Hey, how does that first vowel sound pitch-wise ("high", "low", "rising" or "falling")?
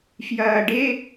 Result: low